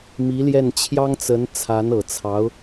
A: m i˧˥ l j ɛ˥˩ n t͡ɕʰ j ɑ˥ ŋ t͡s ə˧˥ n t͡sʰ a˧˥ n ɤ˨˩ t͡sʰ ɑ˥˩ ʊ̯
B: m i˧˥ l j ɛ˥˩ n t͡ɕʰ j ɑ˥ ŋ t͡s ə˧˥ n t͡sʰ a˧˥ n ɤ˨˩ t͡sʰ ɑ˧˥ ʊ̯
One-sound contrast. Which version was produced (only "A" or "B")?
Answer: B